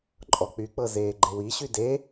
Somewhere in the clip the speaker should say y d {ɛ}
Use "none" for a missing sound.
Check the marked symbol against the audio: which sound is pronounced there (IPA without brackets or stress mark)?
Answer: e